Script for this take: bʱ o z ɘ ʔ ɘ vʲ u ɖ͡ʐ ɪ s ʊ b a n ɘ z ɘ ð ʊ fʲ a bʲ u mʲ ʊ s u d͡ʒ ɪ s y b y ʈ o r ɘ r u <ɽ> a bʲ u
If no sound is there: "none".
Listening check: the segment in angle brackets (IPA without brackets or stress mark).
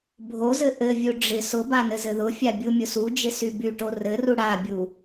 ɽ